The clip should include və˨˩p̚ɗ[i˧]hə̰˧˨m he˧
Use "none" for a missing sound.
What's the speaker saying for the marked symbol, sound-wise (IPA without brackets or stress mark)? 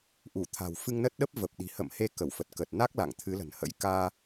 i̤˨˩